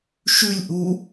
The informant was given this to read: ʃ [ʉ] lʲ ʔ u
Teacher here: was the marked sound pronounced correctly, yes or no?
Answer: yes